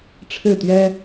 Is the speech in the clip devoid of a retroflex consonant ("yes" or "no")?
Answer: no